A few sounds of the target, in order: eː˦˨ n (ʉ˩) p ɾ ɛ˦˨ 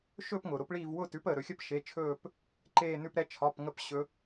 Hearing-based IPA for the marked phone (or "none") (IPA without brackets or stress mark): ʉ˦˨